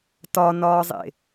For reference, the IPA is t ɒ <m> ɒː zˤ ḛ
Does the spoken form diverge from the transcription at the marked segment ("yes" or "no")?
yes